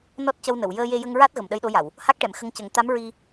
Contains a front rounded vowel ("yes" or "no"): no